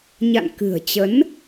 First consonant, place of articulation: palatal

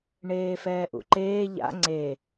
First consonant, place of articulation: retroflex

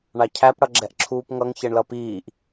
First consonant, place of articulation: retroflex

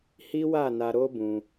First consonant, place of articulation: glottal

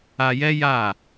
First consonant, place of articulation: palatal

